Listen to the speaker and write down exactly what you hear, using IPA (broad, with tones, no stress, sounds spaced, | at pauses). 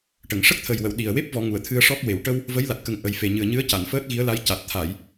ʈ ə˨˩˨ ŋ ʂ ə˦˥ k̚ t̪ʰ ə˨˩ j w ə˨˩˨ w ɗ i˨˩ ə̯ w e˦˥ p̚ v ɔ˨˩˦ ŋ u˨˩˨ ə̯ t̪ʰ ɨ˧ ə̯ ʂ ɔ˦˥ k̚ w e˨˩˨ w ʈ ə˧ w | v ə˧˥ j l a˨˩ t̚ k ə˨˩ ŋ ʔ ə˨˩ j f e˨˩ ɲ ɨ˨˩ ə̯ ɲ ɨ˧˥ ə̯ c a˨˩˨ n f əː˦˥ t̚ ɣ i˧˥ ə̯ l a˧˥ j c a˨˩ t̚ t̪ʰ a˨˩˨ j